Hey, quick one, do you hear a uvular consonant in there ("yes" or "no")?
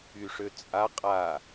yes